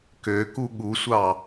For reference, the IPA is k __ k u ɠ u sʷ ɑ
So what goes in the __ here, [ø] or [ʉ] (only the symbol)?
ø